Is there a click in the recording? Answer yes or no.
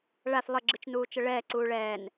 yes